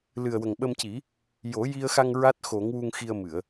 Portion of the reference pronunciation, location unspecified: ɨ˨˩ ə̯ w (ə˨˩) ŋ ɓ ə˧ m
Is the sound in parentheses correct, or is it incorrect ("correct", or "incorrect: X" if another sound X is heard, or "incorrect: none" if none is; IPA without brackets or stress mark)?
correct